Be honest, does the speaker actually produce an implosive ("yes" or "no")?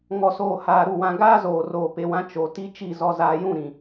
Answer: no